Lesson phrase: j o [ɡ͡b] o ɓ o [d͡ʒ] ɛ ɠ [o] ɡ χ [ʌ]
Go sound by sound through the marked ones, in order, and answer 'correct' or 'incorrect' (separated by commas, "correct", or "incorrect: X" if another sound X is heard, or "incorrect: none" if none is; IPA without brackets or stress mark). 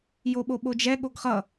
incorrect: ɓ, correct, correct, correct